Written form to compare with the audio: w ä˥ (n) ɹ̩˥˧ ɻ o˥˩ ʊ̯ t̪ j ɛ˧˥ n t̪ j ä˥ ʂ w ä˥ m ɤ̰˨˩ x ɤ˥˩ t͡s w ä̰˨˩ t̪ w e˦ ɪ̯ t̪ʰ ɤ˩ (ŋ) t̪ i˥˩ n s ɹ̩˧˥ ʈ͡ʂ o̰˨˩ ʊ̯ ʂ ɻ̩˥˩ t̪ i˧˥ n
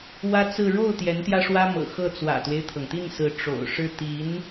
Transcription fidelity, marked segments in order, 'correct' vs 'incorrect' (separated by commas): incorrect, correct